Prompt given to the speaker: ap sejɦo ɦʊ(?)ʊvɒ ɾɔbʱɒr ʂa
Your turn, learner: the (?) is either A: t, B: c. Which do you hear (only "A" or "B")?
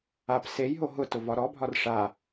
A